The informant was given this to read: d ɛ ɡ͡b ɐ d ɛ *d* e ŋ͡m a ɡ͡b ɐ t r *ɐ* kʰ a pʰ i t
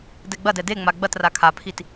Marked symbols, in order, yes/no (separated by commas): yes, no